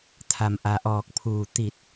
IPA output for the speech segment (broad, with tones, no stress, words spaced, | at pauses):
t̪ʰa˩mʔa˩ʔɔː˧˩k̚pʰuː˧˩ t̪i˧˩t̚